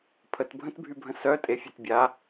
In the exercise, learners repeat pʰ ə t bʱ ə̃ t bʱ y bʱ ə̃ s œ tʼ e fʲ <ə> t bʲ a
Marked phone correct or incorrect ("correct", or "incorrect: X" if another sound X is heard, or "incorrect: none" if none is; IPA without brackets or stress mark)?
incorrect: ø